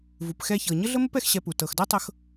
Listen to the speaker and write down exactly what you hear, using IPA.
v u˨ p x ɛ˧ ç ɤ˨ ɲ ə˦ ɮ ə˦ m ə˦ p ɛ˧ x ɕ ɛ˧ p u˨ t ɤ˨ x d ɤ˦ tˤ ɤ˧ x

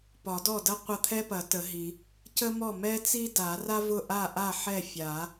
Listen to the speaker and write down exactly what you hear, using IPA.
p ɒ˨˩˦ d ɔ˥˩ d ɐ˥ qʷ ɐ˥˩ t̪ʰ ɛ˥ p ɐ˨˩˦ t ə˨˩˦ ɦ i˨˩˦ | c ə˥ m ɔ˥˩ m ɛ˥ t͡s i˥ d a˨˩˦ r a˥ v ʊ˥˩ ʔ a˥˩ ʔ a˥˩ ħ ɛ˥˩ fʲ a˨˩˦

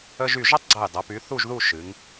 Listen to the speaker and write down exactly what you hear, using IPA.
ə˧ ʒ y˧˩ ʒ ɐ˥ tˤ ɡ͡ǀ ɐ˧˩ j dˤ ɐ˩˧ p y˩˧ θ u˥˧ ʒ ð u˥˧ ʃ ɨ˩˧ ŋ

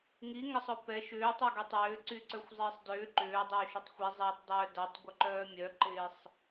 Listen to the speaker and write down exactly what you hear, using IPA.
ŋ i ŋ ə sˤ ʊ p ɛ ʃ ʏː tˤ y ɡ ɛ tˤ ʏː ǀ y ǀ œ xʷ zˤ ɪː sˤ d ʏː ǃ ʏː dˤ ʏː ʃ ø tˤ xʷ i zˤ ɪː tˤ dˤ œː d a tˤ ɡʷ œ ǃ œː mʲ œ ǃ ɪː sˤ

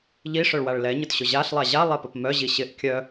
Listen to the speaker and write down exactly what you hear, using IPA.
ʎ i ʂ œ ɭ w a ɭ l ɛ ɲ ʊ t ɕ ʊ ʑ a ɬ lˠ a ʑ a lˠ ɛ p ə p m œ ʑ i ɕ ɪ ʔ kʲ œ

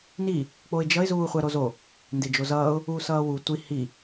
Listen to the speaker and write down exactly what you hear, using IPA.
n i | k͡p o ɪ̯ d͡ʒ ʌ ɪ̯ z uː χʷ ɛ ɾ o z o | n d e d͡ʒ o z ʌː ʊ̯ | uː s ʌː w u tʷ i h i

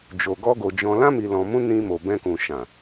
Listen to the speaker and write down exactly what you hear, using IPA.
d͡ʒ o˧ ɡ ɔ˦ ɡ o˧ d͡ʒ ɔ̃˧ l ã˦ m i˧ l ɔ̃˧ m ũ˦ n ĩ˧ m o˨ b ɛ̃˧ k ũ˨ ʃ ã˨

